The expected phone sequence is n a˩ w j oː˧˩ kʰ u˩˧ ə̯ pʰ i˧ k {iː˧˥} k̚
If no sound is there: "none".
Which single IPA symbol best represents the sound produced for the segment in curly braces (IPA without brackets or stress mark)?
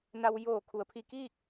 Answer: iː˥˨